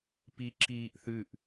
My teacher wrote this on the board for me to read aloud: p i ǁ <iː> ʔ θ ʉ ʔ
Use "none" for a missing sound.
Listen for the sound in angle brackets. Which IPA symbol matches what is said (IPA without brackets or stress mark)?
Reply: iː